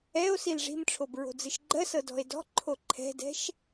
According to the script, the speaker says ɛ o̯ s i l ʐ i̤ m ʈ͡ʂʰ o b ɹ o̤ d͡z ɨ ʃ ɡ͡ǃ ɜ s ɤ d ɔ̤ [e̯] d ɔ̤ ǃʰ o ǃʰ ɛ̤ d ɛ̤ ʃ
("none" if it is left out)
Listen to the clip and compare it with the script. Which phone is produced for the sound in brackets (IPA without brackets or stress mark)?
e̯